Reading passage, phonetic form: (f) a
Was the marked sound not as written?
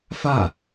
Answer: no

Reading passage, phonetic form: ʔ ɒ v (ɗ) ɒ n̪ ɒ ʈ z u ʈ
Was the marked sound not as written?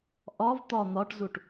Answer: yes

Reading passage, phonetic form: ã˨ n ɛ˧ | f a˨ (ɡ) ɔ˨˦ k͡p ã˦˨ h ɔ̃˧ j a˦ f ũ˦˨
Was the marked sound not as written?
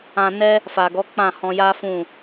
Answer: no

